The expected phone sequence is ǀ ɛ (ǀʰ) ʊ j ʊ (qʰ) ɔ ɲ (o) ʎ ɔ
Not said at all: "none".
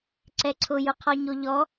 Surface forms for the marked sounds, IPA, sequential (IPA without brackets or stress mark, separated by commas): ǀʰ, qʰ, o